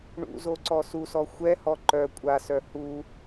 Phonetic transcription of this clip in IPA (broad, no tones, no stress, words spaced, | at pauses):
ɳṵzo ǀɔsusɔ xʷɛhɔ ǃœ kʷʼasœ hu